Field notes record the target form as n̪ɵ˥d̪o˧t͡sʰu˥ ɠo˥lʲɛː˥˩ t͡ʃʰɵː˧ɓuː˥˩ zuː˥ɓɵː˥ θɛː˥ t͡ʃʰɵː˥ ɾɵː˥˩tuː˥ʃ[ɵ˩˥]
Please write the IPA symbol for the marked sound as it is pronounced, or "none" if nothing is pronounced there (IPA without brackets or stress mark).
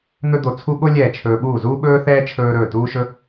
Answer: ɵ˥